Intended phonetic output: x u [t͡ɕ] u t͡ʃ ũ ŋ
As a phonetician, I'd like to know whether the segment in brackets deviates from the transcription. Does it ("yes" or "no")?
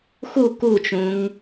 yes